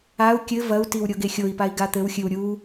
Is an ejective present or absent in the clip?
absent